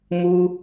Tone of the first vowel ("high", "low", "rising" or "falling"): high